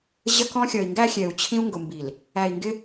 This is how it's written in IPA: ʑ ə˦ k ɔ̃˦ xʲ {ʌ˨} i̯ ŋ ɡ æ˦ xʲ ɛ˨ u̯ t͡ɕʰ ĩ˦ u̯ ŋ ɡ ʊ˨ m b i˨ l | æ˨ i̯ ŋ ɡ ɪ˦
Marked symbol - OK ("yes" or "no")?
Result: yes